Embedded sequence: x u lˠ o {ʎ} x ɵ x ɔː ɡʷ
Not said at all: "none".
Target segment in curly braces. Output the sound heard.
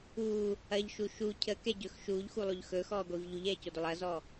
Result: ʎ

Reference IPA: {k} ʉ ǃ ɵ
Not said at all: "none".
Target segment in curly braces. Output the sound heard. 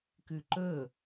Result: k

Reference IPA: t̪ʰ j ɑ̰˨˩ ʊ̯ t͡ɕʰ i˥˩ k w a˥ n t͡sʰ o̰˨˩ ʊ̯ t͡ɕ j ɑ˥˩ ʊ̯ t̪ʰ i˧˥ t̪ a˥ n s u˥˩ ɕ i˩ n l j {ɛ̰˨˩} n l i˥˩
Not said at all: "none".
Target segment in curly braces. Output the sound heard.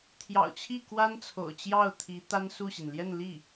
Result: ɛ˥˧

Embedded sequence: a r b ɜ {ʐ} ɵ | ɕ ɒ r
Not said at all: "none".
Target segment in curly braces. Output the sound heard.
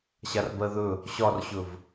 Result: ð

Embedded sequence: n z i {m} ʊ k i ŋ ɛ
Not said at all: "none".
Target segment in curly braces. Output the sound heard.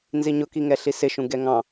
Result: ɲ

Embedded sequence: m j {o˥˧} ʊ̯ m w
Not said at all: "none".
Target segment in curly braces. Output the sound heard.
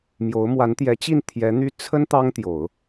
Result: o˧˥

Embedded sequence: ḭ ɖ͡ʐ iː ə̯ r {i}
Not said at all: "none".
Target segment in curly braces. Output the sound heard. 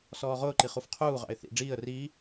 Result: iː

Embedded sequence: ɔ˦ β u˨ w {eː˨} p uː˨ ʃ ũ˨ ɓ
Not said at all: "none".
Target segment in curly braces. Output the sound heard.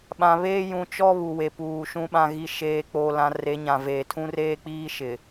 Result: e˨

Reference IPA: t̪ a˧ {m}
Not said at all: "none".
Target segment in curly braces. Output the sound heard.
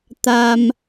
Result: m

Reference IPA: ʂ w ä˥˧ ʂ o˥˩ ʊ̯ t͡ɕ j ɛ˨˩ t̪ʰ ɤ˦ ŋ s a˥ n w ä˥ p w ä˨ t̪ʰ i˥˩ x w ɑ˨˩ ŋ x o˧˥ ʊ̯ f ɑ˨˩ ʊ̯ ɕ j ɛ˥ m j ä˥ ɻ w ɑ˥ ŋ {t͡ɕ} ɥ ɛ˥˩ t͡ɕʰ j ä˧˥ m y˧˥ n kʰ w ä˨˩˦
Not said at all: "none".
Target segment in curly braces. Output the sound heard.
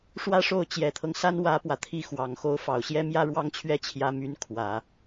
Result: t͡ɕʰ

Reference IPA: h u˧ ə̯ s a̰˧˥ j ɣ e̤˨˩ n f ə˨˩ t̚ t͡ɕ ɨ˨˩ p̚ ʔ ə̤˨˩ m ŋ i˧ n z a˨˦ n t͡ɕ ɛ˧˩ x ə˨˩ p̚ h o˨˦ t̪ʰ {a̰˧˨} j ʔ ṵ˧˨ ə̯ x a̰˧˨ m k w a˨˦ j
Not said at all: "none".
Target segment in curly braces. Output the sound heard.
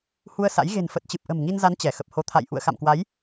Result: a̰˧˨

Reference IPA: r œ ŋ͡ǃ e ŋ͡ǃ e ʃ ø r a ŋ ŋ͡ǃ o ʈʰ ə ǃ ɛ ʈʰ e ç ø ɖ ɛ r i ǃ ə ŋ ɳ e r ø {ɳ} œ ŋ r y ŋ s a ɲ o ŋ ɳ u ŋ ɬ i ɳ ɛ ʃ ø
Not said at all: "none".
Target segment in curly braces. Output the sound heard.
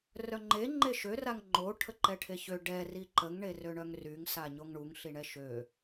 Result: ɳ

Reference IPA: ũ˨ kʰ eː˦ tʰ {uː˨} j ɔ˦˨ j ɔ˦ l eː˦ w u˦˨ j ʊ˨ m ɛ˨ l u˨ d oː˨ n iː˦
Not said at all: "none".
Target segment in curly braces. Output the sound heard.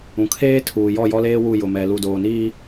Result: uː˨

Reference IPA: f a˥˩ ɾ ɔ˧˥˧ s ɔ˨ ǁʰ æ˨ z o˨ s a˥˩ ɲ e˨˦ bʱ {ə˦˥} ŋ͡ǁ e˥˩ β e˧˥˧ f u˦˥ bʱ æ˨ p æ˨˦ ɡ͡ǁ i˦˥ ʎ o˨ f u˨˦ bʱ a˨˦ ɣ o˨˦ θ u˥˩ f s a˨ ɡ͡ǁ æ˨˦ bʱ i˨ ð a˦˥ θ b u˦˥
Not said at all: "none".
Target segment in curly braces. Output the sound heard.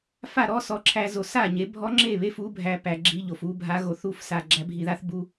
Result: ɔ˦˥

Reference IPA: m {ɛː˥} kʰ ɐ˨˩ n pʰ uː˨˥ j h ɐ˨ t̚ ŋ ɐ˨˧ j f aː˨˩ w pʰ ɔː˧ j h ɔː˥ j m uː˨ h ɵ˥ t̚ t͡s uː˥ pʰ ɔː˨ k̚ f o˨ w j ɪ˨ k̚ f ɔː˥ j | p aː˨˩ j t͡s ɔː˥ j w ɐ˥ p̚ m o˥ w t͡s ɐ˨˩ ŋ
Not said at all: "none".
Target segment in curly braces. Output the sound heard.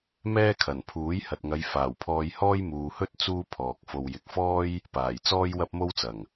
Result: ɛː˥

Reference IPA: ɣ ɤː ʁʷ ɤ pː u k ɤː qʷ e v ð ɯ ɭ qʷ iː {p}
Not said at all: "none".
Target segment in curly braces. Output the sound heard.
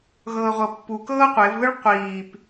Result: p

